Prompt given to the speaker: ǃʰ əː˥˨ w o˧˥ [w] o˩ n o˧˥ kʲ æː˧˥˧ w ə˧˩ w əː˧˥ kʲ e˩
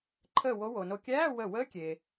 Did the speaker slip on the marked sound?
no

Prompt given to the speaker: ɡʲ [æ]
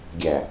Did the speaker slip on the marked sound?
no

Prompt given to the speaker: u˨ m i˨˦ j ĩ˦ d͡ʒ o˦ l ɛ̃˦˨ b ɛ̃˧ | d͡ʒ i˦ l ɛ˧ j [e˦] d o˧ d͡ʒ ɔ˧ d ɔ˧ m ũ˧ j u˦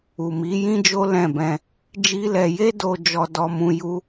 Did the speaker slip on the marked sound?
no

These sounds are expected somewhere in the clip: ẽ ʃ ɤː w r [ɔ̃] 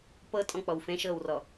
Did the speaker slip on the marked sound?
yes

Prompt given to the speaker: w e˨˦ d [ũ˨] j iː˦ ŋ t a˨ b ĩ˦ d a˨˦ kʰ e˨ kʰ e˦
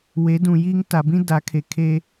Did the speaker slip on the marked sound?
no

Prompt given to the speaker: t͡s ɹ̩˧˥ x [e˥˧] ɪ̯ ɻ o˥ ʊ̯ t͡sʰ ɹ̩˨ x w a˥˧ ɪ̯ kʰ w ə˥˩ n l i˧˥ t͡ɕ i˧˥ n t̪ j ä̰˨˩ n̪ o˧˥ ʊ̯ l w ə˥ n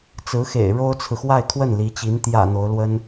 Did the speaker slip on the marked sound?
yes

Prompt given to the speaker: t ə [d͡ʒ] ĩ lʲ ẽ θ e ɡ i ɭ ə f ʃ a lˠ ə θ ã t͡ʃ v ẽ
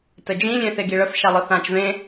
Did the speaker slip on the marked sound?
no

